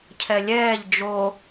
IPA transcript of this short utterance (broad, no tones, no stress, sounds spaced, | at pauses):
cʰ ɛ lʲ ɛː ʎ d͡ʒ o